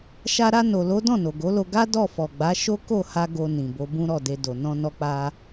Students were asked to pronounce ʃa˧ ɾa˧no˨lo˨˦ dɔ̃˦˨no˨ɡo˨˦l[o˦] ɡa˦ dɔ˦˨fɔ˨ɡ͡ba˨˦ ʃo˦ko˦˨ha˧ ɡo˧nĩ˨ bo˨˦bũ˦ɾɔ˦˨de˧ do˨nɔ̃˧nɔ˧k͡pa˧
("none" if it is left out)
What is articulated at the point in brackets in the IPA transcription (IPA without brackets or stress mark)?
o˧